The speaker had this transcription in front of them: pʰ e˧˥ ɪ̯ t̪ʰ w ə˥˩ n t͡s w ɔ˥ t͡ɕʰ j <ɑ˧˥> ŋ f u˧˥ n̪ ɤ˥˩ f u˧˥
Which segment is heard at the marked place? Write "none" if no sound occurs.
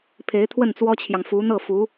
ɑ˨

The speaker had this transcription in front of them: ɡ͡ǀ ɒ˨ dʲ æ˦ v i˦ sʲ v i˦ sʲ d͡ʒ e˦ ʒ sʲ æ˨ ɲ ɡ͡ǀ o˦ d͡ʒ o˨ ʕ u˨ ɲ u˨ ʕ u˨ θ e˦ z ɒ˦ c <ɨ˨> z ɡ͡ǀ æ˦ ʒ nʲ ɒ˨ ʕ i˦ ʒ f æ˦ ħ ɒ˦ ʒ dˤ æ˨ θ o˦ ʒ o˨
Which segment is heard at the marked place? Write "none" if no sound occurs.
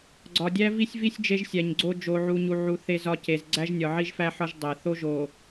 e˨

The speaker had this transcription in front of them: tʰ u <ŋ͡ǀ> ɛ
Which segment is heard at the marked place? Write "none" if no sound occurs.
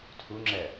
ŋ͡ǁ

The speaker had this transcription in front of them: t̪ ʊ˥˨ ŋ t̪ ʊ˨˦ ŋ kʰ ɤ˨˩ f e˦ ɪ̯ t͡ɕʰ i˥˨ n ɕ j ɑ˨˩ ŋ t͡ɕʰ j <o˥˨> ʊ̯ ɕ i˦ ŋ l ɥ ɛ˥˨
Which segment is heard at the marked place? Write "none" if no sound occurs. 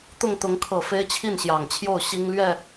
o˥˨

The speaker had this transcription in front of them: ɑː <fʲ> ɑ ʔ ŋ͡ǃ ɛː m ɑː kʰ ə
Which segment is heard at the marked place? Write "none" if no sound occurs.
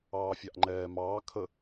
fʲ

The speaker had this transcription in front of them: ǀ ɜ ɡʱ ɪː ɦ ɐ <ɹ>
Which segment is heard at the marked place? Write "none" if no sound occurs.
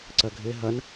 n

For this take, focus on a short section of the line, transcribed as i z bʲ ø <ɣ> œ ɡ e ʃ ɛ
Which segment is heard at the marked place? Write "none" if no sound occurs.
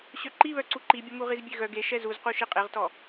ɣ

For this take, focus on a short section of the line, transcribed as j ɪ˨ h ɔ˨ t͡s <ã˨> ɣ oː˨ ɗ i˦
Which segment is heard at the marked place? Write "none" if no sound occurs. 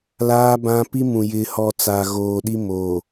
a˨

